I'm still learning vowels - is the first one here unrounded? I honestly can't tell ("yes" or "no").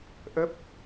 yes